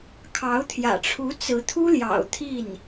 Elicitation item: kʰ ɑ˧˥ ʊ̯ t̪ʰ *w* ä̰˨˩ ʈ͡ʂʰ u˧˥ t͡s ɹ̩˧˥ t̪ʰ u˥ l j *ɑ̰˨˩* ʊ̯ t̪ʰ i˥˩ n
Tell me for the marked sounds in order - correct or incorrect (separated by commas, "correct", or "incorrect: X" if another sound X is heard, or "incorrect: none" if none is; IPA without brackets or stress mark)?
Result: incorrect: j, correct